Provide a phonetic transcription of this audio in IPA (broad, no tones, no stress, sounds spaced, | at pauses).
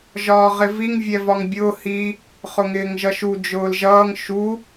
ʒ ɒː ʁ ɪ v i ŋ vʲ ɛ v ɒ ŋ bʲ ʊː h i | χ ʊ ŋ ɪː ŋ ʒ ʌ ʃ u d͡ʒ ʊː l ʒ ʌː ŋ ʃ u